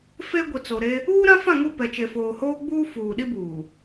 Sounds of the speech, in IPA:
f e˦ ɡʷ i˨ t͡s o˨ ɾ e˦ | uː˦ ɾ ã˦ f ã˦˨ ŋ u˦˨ p ɛ˨ t͡ʃ e˨ f oː˨ h oː˦ ɡ͡b uː˦ f uː˨ ɗ i˦ b uː˨

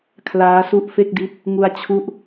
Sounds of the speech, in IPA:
kʰ l aː˦˥ s u˥˩ ʔ f e˥˩ k̚ d i˦˥ t̚ | ŋ u˧ a̯ t͡ɕʰ u˦˥ ʔ

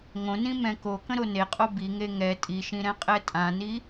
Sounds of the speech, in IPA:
ŋ õ n ĩ m ɛ̃ k o k ə̃ ɾ o n e qʼ o b i ŋ e ŋ ɛ tʼ i ʃ ĩ ɾ ɛ̃ qʼ ɛ tʼ ã n i

